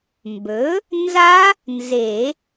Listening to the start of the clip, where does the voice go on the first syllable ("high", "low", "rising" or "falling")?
rising